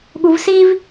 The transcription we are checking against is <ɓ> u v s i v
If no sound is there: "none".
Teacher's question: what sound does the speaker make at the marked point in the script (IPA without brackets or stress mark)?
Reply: ɠ